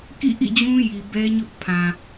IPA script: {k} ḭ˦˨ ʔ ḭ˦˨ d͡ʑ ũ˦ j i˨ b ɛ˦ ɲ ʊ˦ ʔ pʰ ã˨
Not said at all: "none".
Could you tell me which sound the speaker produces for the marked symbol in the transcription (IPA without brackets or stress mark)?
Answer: k